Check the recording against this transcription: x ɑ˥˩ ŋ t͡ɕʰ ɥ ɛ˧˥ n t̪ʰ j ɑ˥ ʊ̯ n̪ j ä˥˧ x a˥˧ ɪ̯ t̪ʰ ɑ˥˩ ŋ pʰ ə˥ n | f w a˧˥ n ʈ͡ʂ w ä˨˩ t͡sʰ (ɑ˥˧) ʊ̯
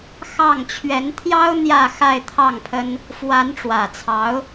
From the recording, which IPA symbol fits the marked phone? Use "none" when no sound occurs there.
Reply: ɑ˧˥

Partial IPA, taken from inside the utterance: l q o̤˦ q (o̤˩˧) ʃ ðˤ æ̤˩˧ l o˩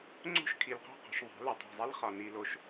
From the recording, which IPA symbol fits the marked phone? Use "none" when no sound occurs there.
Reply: o̤˩˧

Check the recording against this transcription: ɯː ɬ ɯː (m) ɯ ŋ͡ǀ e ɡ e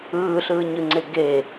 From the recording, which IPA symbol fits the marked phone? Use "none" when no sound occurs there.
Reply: ɲ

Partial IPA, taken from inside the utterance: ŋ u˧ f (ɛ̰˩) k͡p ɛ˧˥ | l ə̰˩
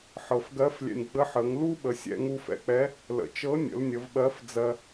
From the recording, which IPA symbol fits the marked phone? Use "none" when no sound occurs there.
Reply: ɛ̰˩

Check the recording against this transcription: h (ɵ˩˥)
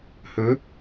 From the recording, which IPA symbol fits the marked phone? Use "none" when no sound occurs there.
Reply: ɵ˩˥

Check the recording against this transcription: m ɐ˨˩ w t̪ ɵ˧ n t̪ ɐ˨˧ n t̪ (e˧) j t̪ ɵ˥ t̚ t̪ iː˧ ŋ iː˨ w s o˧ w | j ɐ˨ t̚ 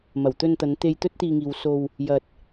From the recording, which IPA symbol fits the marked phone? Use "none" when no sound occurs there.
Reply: e˧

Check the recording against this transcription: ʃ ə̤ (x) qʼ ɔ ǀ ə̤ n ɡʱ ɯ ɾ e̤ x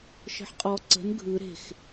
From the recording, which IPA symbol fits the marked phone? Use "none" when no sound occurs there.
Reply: ħ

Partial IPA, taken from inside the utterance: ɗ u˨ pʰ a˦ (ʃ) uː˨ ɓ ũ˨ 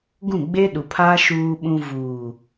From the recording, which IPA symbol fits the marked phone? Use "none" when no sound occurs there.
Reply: ʃ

